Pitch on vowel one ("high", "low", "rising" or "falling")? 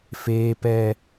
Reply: high